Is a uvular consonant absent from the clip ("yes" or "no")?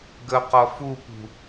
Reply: no